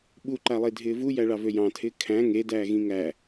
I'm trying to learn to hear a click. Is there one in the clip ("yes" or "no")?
yes